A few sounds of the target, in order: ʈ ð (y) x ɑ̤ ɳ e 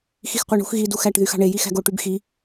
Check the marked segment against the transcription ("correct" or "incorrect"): correct